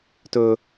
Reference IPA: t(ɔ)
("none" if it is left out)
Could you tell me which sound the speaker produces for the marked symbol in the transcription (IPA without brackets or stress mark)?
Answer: ɵ